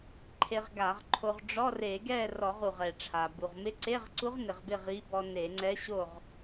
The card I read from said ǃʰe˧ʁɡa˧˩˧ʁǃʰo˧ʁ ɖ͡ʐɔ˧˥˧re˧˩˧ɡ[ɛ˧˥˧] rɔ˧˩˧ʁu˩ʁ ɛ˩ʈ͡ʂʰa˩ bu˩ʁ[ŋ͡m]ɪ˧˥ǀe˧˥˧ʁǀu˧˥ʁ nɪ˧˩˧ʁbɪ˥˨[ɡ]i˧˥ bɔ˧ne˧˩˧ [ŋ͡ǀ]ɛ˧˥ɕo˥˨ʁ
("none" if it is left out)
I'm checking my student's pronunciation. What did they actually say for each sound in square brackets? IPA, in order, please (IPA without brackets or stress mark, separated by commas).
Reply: ɛ˥˨, m, ʁ, ŋ͡ǀ